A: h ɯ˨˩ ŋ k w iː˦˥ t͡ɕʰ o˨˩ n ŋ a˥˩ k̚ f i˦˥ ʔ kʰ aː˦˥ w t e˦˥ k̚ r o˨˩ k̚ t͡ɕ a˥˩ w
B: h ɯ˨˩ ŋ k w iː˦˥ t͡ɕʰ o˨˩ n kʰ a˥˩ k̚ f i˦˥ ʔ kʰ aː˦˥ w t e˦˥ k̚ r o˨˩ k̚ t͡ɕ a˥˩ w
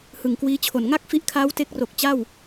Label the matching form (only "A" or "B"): A